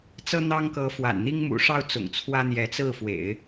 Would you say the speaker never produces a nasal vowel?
yes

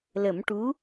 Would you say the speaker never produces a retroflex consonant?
no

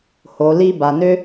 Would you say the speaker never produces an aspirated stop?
yes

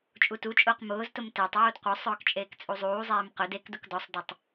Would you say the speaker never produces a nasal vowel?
yes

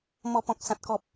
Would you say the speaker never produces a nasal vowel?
no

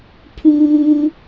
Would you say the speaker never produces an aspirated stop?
no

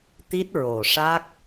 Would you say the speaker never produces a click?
yes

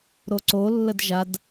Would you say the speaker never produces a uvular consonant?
yes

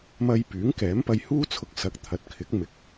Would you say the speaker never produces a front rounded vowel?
no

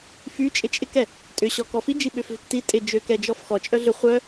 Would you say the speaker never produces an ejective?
no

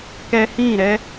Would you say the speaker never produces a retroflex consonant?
yes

